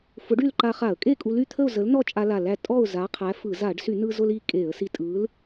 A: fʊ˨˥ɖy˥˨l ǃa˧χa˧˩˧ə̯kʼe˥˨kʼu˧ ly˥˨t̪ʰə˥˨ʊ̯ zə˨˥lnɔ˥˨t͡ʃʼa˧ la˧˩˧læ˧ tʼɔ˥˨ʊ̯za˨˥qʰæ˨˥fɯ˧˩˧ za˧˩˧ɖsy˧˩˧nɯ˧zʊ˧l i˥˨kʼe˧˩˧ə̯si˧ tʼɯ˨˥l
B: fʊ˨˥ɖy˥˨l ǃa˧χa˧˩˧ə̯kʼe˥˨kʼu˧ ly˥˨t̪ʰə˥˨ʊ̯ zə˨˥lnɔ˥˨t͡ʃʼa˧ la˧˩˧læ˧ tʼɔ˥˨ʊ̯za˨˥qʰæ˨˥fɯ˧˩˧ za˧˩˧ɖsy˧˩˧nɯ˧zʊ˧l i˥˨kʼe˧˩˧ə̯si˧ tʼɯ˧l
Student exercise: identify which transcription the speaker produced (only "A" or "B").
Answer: A